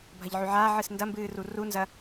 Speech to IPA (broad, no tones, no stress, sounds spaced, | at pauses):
bʱ ɐ ʎ ʕ ʉ ʕ aː ʕ ɨ s n d ɐ m b ɨː r u r u n z ɐ